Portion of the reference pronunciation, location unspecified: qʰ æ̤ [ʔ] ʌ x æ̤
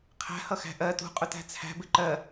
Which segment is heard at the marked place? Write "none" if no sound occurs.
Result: h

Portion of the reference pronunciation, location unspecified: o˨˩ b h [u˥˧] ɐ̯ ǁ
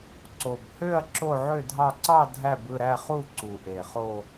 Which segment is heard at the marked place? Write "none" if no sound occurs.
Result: ø˥˧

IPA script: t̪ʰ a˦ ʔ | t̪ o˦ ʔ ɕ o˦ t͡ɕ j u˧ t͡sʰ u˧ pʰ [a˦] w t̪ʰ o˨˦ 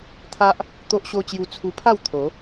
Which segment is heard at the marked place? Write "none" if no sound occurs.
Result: a˥˧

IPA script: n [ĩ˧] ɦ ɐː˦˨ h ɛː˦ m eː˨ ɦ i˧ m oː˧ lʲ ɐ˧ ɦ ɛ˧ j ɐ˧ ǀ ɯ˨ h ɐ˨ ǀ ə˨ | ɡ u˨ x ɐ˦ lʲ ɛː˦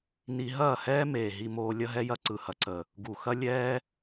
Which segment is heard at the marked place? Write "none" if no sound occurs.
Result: i˧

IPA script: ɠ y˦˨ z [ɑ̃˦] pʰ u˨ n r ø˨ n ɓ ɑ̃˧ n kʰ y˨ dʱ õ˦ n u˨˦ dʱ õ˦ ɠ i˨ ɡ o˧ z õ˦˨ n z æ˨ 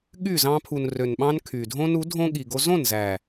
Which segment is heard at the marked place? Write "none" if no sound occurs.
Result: ɑ̃˧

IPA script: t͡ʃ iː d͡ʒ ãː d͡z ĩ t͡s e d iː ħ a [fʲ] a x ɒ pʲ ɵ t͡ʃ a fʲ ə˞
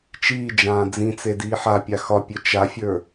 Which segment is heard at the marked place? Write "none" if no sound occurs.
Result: pʲ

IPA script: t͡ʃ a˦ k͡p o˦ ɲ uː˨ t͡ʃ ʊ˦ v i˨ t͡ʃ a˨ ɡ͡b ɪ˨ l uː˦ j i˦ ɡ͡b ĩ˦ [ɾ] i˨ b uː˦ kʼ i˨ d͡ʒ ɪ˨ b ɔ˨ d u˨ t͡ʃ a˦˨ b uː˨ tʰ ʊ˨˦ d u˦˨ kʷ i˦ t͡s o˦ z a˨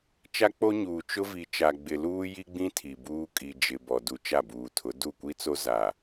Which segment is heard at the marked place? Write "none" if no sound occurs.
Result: tʰ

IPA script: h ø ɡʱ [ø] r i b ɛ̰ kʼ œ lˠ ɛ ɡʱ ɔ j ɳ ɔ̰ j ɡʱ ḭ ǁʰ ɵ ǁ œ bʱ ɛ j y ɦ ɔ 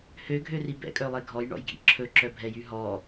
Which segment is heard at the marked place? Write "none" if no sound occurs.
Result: ø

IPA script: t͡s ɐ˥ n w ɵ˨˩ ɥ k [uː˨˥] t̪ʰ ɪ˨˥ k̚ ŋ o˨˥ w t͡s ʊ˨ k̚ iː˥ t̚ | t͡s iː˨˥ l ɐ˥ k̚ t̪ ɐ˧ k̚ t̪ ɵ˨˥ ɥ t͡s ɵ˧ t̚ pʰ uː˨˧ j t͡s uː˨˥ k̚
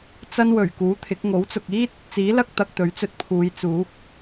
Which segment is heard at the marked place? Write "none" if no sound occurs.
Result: uː˨˥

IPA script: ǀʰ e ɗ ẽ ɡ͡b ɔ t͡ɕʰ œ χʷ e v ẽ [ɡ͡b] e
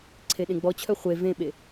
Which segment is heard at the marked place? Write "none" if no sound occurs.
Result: ɓ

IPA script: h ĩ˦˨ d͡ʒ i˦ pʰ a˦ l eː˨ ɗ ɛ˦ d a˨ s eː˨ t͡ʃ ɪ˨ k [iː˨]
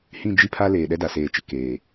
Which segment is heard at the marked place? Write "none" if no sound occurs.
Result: eː˨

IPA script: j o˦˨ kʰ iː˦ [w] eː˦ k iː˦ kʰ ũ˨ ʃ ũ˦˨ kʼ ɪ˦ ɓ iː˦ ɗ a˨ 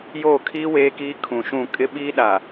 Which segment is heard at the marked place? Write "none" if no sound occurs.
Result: w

